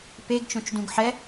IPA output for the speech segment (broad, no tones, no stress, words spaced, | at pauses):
peɡt͡ʃõt͡ʃdũɡ ħɛ